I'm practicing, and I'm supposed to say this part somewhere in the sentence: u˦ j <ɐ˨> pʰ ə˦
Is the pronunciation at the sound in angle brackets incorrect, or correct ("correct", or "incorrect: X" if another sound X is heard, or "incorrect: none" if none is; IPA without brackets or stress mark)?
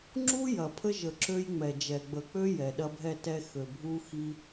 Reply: correct